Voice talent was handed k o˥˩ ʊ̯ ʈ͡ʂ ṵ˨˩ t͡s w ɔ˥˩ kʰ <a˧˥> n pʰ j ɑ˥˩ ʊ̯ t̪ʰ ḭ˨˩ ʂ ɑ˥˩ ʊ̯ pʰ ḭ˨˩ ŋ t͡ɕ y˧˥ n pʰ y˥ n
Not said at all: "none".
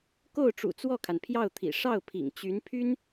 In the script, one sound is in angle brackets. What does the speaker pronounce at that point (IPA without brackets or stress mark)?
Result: a˩